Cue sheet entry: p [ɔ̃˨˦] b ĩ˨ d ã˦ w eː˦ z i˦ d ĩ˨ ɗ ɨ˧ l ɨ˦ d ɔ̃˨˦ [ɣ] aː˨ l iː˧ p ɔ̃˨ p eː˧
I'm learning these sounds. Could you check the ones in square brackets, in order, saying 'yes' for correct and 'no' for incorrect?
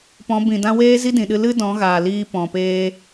yes, yes

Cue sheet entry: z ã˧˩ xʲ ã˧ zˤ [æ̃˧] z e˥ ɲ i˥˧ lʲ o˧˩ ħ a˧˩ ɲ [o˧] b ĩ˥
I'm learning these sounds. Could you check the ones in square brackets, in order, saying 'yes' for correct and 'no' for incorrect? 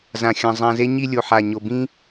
no, yes

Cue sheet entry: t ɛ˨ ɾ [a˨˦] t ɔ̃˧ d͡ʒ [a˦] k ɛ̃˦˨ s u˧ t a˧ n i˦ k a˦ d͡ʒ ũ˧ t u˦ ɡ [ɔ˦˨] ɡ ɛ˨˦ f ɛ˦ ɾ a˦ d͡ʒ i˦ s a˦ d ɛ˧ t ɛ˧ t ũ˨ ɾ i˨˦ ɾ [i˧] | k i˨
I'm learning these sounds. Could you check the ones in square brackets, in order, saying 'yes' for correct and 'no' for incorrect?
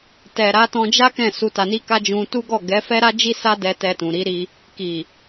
yes, yes, yes, yes

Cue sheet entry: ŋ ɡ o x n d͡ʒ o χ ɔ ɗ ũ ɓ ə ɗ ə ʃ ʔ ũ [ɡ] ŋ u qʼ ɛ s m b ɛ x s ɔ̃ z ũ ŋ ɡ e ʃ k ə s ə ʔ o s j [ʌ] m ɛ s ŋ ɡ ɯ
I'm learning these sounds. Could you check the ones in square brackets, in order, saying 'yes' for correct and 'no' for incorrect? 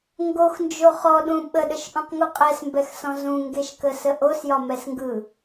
no, no

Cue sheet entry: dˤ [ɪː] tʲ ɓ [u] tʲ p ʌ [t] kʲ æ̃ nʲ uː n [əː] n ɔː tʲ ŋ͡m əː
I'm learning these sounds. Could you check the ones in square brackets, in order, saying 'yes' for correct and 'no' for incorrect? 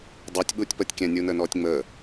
yes, no, no, yes

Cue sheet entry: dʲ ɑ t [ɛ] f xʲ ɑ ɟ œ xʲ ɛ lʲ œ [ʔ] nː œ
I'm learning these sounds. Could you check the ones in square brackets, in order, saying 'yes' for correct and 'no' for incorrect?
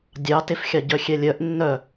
no, yes

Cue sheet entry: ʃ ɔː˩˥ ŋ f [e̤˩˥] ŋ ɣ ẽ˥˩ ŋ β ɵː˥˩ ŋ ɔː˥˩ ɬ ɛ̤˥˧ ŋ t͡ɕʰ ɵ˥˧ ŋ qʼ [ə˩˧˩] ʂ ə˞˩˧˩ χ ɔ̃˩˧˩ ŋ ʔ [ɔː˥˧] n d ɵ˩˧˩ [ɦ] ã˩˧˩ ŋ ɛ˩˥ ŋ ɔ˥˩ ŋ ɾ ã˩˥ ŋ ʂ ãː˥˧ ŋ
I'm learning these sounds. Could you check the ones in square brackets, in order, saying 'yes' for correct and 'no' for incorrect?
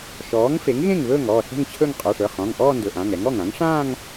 no, no, yes, no

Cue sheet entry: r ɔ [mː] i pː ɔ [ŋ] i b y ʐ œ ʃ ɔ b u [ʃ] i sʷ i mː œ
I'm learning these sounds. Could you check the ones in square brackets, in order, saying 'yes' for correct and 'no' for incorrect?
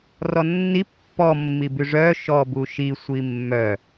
no, no, yes

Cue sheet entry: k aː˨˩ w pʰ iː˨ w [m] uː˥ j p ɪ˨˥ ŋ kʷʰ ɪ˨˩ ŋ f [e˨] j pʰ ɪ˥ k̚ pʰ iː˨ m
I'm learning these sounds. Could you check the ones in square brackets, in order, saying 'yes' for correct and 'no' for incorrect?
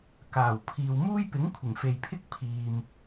yes, yes

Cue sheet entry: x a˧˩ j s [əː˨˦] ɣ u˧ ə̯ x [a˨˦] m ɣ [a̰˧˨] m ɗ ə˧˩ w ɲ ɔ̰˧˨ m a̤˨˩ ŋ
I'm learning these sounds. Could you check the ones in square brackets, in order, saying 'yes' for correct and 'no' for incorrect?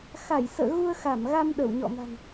no, no, no

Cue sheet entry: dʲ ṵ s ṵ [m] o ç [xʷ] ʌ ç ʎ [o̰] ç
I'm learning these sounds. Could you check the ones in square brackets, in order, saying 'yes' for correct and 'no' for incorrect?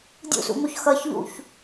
yes, no, no

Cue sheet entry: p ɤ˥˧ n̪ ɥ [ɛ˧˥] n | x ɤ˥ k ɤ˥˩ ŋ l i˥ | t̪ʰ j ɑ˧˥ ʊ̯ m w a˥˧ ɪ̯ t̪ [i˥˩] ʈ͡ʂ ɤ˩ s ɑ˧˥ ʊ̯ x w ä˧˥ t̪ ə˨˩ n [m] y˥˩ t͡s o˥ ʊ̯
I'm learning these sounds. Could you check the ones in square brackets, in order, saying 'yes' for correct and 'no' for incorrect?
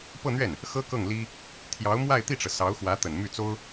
no, yes, yes

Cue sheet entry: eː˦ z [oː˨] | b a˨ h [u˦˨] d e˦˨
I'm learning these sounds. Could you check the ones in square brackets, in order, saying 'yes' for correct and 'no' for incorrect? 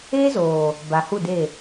yes, yes

